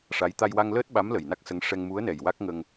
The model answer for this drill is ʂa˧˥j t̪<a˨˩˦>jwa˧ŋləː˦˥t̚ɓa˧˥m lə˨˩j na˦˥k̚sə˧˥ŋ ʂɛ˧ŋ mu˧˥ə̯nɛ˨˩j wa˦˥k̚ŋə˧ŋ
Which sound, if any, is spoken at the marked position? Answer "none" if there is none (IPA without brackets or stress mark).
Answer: a˧